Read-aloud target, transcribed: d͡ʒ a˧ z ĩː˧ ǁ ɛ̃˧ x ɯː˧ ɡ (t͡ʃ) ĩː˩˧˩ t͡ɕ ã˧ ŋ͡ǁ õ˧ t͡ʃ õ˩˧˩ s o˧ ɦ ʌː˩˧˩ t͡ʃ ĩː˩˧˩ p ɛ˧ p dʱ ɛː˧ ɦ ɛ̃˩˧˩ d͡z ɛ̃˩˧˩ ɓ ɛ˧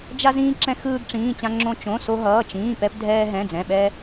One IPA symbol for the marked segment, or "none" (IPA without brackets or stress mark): ʈ͡ʂ